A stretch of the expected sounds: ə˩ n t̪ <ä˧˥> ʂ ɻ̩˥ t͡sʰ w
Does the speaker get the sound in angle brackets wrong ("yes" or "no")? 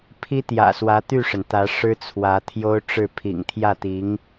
no